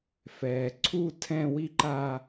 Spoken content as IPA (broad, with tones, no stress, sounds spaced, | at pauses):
f ɛ˩ ǀʰ u˥˧ tʰ ɛ̃˥˧ w i˥˧ ǃ a˥˧